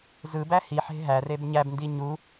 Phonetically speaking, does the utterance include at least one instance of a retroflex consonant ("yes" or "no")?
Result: no